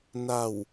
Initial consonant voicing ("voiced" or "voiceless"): voiced